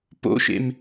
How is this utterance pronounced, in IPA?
p o̰ ʃ ḛ m

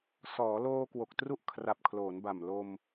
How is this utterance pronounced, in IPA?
s ɔː˩˦ l oː˧ k w o˨˩ k̚ t r u˥˩ ʔ kʰ r a˨˩ p̚ kʰ l oː˩˦ n b a˨˩ m l o˧ m

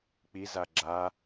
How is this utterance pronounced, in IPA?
k͡p i z a ɡ͡ǁ a

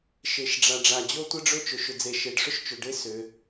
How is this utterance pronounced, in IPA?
ʃ e˩ ʃ ɖ͡ʐ a˩ ɖ͡ʐ a˩ d͡ʑ o˥ tʷ ə˥ ɖ͡ʐ ɵ˥ t͡ʃ ɵ˩ ʃ ʏ˩ d͡z e˩ ʃ e˩ ɖ ʂ ʏ˥ ʃ t͡ʃ ɵ˩ ɖ e˥ s ʏ˩

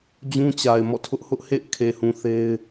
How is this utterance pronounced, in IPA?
d͡ʑ ũ˦ t͡ɕ a˨ ɪ̯ m ɔ̰˦˨ tʰ ʊ˦ ʔ h ʊ˦ ʔ h ḛ˦˨ ɪ̯ kʰ e˨ h ũ˨ θ e˦ ɪ̯

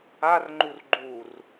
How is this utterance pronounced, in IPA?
a r ŋ͡ǃ u r ɡ͡ǃ u r

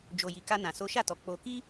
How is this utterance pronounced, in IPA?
d͡ʒ o˨ j i˨ k a˧ n ã˨ s o˨˦ ʃ a˦˨ t ɔ˨ k͡p o˧ k i˦

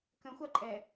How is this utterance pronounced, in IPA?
k ə̃ xʷ a ǃʼ ɛ

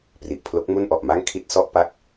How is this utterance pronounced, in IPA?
p r i˨˩ ʔ pʰ l o˦˥ k̚ m u˥˩ n ʔ ɔ˨˩ ʔ m a˥˩ ŋ kʰ i˦˥ t̚ s ɔ˦˥ ʔ p a˦˥ k̚

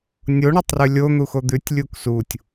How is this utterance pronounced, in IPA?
nʲ o ɳ o tˤ r ʉ lʲ o n̪ u x o d̪ ʉ tʲ lʲ u k s u tʲ

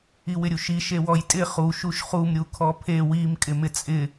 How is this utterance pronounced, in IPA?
i w ɪ ɾʲ u ʃ i ʃ e w ɔ j tʼ ɪ χ u ʃ u ʃ χ u m ɾʲ u kʰ ɔ pʰ e w i m kʼ ɪ m ɪ t͡sʼ ɪ

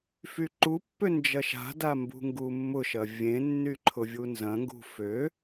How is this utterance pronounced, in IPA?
f y ǃ u pː ø n d͡ʒ ɐ ʃ a̤ d a m b ṳ ŋ ɡ u mː ʊ ʃ ɐ vʲ ẽ nː y ǃʰ ʊ vʲ u n z ɐ̃ ŋ ɡ ṳ f ø

